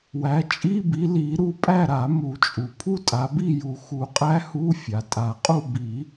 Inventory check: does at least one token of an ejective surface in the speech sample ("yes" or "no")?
yes